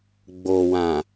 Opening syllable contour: low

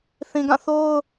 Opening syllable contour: low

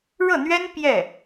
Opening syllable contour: falling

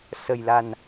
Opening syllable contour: low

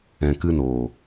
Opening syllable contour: low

